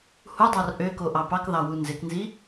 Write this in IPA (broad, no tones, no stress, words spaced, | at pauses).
hudˤɑr ʔøko ʔɑpɑkðɑ wunzeknzi